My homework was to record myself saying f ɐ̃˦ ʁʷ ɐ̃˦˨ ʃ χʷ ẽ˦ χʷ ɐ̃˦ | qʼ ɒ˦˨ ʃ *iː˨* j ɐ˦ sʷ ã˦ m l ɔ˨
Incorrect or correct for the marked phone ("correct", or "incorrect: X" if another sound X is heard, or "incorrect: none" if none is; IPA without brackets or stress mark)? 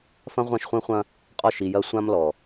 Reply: incorrect: i˨